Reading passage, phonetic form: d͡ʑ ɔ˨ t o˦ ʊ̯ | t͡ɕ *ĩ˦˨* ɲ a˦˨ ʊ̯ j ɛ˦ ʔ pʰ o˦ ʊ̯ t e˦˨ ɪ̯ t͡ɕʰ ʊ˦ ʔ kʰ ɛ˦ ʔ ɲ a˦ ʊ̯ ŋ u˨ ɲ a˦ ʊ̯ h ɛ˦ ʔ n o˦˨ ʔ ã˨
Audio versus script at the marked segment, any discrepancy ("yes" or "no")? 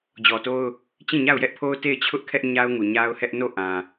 no